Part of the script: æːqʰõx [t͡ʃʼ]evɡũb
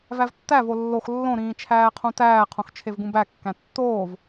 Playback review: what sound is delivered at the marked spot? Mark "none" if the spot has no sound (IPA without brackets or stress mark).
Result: t͡ʃʰ